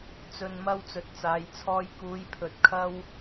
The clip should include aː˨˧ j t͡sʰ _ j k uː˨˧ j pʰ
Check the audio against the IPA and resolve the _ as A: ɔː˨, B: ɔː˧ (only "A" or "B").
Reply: B